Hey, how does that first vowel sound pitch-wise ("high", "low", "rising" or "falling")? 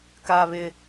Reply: high